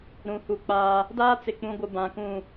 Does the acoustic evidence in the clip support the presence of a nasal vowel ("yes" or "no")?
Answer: yes